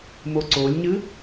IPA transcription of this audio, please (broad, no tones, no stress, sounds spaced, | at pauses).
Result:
m o ǀ o lʲ ɲ ɨ